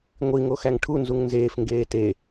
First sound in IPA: ŋʷ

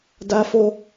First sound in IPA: d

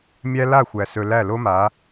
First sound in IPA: mʲ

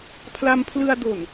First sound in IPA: pʰ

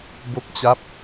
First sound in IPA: b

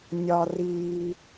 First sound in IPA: nʲ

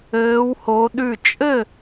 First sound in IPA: ɘː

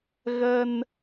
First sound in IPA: ɣ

